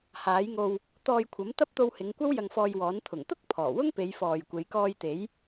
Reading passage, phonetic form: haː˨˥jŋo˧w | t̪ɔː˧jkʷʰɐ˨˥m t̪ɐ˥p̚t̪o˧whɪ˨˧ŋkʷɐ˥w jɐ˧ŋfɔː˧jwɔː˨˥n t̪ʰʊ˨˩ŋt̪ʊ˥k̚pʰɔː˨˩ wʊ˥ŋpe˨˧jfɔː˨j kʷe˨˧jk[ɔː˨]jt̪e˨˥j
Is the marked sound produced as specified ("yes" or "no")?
no